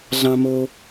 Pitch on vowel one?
high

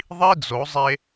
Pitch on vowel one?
high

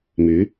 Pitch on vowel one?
rising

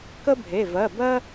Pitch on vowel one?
high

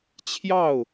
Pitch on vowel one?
falling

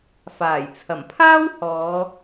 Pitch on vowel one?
low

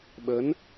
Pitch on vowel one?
rising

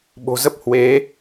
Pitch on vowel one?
low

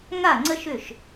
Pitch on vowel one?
falling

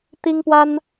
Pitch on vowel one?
high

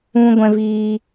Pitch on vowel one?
high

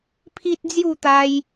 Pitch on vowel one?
high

